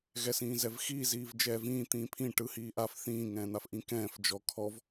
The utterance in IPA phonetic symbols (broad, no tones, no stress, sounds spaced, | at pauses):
ɣ ɛ s ĩː z ɛ v x iː z iː v d͡ʒ ɛː v ĩː t̪ ĩː pʰ ĩ ʈ ɯ h iː ʔ a f θ ĩː ŋ ɛ̃ː n̪ a f ʔ ĩ k ɛ̃ː f d͡ʒ ɔ kʰ ɔ v